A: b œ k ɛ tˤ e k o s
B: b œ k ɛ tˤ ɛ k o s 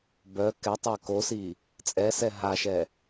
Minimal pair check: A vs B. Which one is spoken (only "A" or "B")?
A